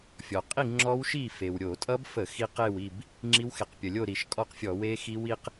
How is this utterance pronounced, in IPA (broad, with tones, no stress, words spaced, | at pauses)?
fʲɔ˩qʼi˥˨ ŋ͡ǁɔ˦˥wʃi˥˨fe˩w ɾʲo˧˩˧tʼʌ˦˥bfə˧˩˧ xi˧q e˥˨wi˥˨b | ŋ͡ǁi˦˥wxe˧˩˧q pʲə˩lʲo˥˨ɾi˧˩˧ʃkʼɔ˥˨q fʲɔ˧˩˧ we˦˥ xi˦˥wi˦˥q